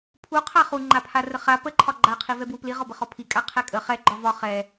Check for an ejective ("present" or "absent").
present